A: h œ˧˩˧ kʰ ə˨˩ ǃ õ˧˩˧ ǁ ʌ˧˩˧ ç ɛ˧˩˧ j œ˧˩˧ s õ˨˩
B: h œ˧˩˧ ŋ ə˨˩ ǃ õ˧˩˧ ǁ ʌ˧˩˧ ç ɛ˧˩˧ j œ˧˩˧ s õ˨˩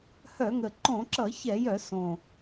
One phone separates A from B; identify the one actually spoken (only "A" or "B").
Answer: B